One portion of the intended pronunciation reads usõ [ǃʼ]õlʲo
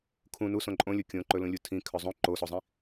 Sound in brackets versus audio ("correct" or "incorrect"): correct